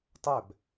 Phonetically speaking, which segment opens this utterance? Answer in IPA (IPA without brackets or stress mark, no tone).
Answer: tˤ